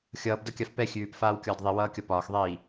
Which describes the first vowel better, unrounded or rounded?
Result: unrounded